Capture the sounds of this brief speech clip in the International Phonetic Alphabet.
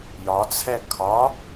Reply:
j ɒ t͡sʰ ɛ kʰ ɒ

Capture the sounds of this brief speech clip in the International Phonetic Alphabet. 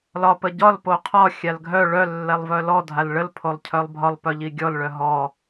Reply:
l ɒ p ə ɟ ɒ l p o qʰ ɒ xʲ a l ɡʱ œ ɭ œ lː ɛ lˠ v œ l ɔ dʱ a l ɭ ə l pʰ o lˠ cʰ œ lˠ bʱ ɒ lˠ p œ ʎ i ɡʲ ɔ l ɭ œ ɦ ɔ

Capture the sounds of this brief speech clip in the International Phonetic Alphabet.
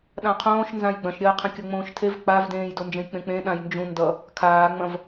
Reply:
ɗ ã qʰ õː ʃ n z ã j ɡ͡b ɐ̃ ʃ ɾʲ ɐː qʰ ɐ̃ kʲ ʌ ŋ͡m õː ʃ tʰ e v k͡p a v d ẽː j d o n d͡ʒ ẽ j k͡p ẽ k͡p ẽ ɗ ã j n d͡ʒ ũ n d ʌ | kʰ aː ŋ͡m ɐ̃ v

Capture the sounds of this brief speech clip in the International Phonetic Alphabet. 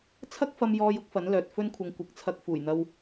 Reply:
t͡sʰ ɐ˥ k̚ f ɐ˧ m j ɔː˧ j ʊ˥ k̚ f ɐ˨˥ n l œː˨ t̚ f ɵ˥ n kʷʰ ɐ˧ ŋ kʷ ɪ˨˥ k̚ t͡sʰ ɐ˧ k̚ f uː˨˩ j n̪ ɐ˧ w

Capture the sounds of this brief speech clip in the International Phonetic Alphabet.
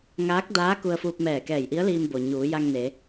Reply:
ŋ aː˧˥ k̚ d aː˧˥ k u˧ ə̯ f uː˧ p̚ m ɛː˧˩ k ɛː˧˩ j ʔ i˧˥ ə̯ l iː˧ m b o˩ ɲ uː˩˧ j a˧ ŋ n e˩˧

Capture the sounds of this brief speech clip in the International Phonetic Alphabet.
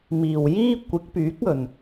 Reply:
m iː˨˩ w j iː˥ kʷ ɪ˨˥ k̚ p yː˨˥ k̚ ɵ˨˩ n

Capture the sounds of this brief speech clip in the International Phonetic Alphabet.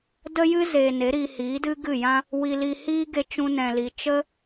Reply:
d ə˦ j ɨ˦ z e˨ n e˨˦ ɾ iː˧ h iː˨˦ d ɨ˦ ɡ ɨ˦˨ j ã˦ | w i˧ l i˧ h iː˦ ɡ e˧ t͡ʃ ũ˦ n ɛ̃˧ l i˧ t͡ʃ ə˦

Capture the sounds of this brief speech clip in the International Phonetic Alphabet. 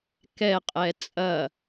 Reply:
k ɛ qʼ ɛ t͡sʼ ɐ

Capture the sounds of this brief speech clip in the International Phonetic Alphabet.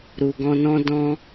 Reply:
ɾ u˨ ɡ ɔ̃˧ n ɔ̃˦ d ɔ̃˦

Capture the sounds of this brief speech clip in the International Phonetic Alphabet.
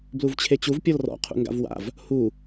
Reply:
b l u v t͡ɕʰ e t͡ɕ u v pʲ ɔ l r ɔ̰ qʰ ṵ ŋ ɡ a̰ v w a̰ v | h u

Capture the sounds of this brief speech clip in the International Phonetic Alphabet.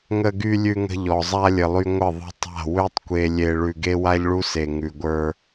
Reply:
ŋ ə˨ ɡ y˨ lʲ ʉ˨ ŋ ə̤˨ ʎ ɔ˨ zˤ a˦ lʲ ə˨ lˠ y˦ ŋʷ ə˦˨ ðˤ ə̤˦ tˤ a̤˦˨ w ø˦ tˤ kʷ e˨ lʲ e˨ ɭ ʉ˨ ɡ e˦ w a˦ ʎ ɭ u˦ s e˨ ŋ ʉ˨ ɡʷ ə˞˦

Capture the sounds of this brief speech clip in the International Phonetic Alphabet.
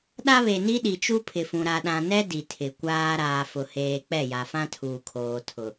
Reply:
ɗ a˦ β e˨ n i˦ ɗ i˨ t͡ʃ u˦ pʰ ɪ˨ f ũ˨ ɾ a˨ ɗ ã˨ n ɛ˦ d i˨ tʰ ɪ˨ kʷ aː˦ ɾ aː˨ f ʊ˨ h eː˨ k͡p ɛ˦˨ j a˨ f ã˦ tʰ uː˨ kʰ oː˨ tʰ ʊ˨

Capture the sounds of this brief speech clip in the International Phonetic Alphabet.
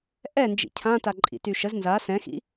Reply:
ʔ ɛ n d͡ʒ ḭ cʰ ã t a ǃʼ ḭ t y ʃ ə z n z a s ɛ̃ x ḭ

